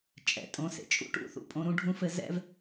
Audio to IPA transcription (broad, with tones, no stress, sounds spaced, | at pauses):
t͡ʃʼ ɛ̰˩ tʼ õ˨ s ḛ˩ t͡ʃʼ ṵ˦ ʈ ṵ˨ θ ṵ˨ pʼ õ˨ ɾ ũ˥ ɖʱ ũ˥ f ɘ˥ z ɛ̰˦ v